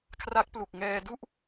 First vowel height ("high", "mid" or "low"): low